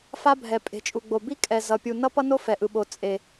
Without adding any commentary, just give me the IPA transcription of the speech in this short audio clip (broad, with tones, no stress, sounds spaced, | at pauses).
f a˦ bʱ ɛ˨ pʼ e̤˨ t͡ʃʼ u˨ ɡ͡b o˨ b i˦ kʼ ɛ˨ z ʌ˨ pʲ u˨ n ʌ˦ p ʌ˦ n o˦ f ɛ˨ ʔ ɯ˨ ɓ o˨ t͡sʼ e˨